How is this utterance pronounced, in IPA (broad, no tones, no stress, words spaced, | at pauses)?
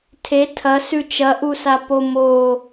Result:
tʰe tʰɐ sʉt͡ʃɐʔusa pomo